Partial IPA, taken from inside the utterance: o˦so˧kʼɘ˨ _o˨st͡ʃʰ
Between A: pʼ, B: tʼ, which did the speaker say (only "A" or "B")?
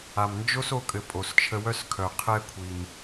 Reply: A